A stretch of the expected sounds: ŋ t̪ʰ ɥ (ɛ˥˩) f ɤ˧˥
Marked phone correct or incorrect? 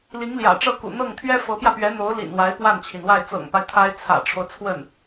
incorrect